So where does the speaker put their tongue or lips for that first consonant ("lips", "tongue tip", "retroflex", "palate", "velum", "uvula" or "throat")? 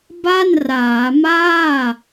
lips